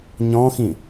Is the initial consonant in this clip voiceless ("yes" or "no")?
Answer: no